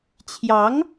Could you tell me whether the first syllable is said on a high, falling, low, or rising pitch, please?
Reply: rising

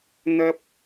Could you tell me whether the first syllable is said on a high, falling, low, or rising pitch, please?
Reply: high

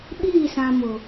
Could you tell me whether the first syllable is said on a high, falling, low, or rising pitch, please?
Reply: falling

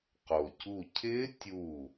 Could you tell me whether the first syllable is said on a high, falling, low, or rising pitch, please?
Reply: low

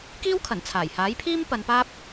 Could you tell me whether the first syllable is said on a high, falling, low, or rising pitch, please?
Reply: high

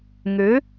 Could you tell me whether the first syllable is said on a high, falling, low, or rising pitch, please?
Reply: rising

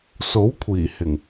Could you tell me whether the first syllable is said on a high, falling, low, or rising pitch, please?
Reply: rising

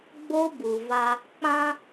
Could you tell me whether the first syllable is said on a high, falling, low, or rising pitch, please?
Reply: high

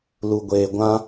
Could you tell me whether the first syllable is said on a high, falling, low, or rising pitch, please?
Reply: low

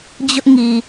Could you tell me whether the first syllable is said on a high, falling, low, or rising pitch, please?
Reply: high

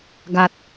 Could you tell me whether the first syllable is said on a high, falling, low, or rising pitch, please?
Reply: low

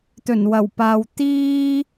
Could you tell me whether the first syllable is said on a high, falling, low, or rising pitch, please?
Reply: low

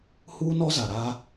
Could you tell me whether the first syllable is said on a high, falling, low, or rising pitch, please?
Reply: high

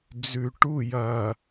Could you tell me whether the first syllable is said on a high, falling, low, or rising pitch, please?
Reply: low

